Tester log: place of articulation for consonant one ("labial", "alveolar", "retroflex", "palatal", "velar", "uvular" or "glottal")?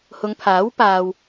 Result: glottal